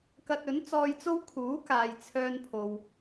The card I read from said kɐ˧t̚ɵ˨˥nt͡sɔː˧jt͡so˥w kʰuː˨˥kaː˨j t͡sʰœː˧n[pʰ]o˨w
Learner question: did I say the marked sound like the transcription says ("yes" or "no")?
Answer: yes